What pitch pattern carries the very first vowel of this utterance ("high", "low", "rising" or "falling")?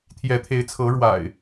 rising